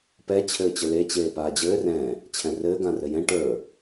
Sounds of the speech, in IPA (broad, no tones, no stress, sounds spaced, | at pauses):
p ɛ t͡ɕʰ ɘː t͡ɕ ɘ l e t͡ɕ eː p aː d͡ʑ ɘː r ɛ̃ | t͡ɕʰ ɛ̃ r ɘː ɡ ã r ɘ j ɛ̃ ʈ ə˞